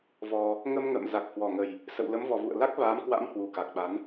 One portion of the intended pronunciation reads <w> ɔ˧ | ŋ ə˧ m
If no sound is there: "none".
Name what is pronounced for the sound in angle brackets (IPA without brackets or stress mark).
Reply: v